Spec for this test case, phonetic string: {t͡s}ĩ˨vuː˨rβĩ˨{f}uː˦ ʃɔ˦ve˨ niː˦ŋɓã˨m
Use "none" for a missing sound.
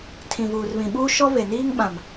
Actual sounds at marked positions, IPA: tʰ, ɓ

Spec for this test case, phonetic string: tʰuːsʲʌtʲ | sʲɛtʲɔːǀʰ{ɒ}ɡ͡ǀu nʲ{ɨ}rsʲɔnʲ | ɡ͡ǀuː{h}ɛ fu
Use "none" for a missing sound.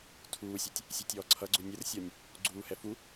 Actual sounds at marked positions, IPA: ʌ, ə, h

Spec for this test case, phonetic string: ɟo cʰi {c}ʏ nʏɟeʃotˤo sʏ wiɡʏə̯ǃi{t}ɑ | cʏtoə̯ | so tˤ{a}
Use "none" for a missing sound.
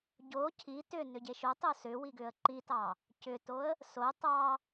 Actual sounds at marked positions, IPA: t, t, ɑ

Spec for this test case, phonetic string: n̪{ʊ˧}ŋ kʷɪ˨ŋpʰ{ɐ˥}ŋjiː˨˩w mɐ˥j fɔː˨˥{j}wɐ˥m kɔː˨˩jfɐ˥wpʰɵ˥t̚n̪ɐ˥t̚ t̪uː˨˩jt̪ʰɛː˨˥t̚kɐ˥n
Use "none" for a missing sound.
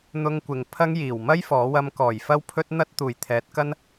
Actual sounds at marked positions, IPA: ʊ˧, ɐ˥, none

